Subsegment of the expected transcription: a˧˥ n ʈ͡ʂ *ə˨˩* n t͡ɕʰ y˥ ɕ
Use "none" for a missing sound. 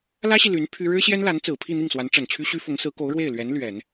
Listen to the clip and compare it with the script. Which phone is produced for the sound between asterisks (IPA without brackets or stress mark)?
ə˨˩